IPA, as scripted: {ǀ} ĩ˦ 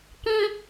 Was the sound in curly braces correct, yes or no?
no